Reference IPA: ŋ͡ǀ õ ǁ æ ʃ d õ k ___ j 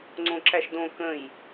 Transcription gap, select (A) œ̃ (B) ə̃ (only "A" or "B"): B